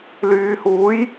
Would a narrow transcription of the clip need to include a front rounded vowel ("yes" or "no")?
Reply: yes